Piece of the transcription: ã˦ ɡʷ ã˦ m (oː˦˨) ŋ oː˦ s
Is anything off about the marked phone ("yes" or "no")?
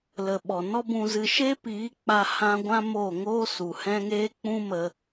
no